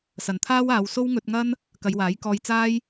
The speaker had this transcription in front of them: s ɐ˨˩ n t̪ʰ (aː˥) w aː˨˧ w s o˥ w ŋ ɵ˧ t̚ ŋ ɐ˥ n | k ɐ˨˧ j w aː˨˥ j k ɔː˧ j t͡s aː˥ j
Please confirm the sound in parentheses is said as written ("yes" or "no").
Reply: yes